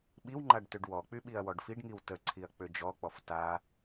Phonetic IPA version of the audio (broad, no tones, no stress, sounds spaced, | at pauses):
ɓ i w ŋ͡ǃ a ɖ t ø ɖ w ɔ k͡p y ɓ i ɐ̯ w ɔ ɖ f i ɖ ŋ i w t ə ǀʰ i ɐ̯ k͡p ø d͡ʒ ɔ k͡p ɔ f t a